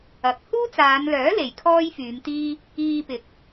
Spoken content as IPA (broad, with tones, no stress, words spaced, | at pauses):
ɐ˨˥k̚ huː˥t͡saː˨˧nlœː˨˥ le˨jkʰɔː˥jfyː˨˧mt̪iː˥ | iː˧pɪ˨˥k̚